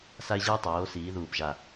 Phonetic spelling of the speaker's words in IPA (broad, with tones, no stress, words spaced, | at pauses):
sa˧ɪ̯ʑɯː˧tˤoː˩˧ siː˩˧ðuː˨˩pʒa˨˩